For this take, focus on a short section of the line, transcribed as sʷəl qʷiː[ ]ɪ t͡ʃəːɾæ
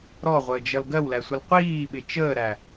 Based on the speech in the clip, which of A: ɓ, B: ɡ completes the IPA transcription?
A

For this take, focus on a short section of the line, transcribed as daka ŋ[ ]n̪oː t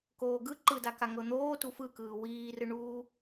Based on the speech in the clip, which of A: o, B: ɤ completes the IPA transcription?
B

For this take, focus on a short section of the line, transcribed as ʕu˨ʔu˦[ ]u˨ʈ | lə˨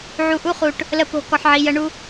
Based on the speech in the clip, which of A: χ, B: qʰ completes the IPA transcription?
A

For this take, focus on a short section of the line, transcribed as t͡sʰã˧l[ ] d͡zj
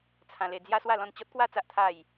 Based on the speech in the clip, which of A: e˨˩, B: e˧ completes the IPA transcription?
B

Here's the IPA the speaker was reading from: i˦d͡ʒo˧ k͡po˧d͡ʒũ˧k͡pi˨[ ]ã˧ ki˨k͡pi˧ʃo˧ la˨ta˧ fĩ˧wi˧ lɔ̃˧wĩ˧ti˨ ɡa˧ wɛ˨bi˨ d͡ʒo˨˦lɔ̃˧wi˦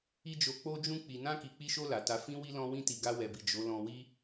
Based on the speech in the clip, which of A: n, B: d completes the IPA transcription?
A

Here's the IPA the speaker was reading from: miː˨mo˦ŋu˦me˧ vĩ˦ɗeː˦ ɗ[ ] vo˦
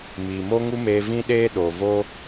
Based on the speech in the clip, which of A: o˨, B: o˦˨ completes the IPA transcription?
A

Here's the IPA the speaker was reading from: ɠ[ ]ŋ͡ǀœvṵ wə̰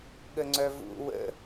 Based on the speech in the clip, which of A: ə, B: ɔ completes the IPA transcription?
A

